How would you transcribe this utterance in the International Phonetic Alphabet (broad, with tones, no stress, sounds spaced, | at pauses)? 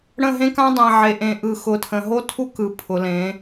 ɽ ə̃˦˨ ɦ ẽ˦ k ã˦ dˤ ẽ˨ ʕ e˨ ʔ ẽ˨ ʔ ɯ˨ x ʊ˨ tʰ ə̃˨ ɦ o˦ tʰ u˦ k ɯ˨ pʰ ʊ˨ l ẽ˨˦